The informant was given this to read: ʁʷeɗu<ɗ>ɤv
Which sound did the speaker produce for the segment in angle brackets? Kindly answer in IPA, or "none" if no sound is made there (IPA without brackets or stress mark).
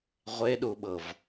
ɓ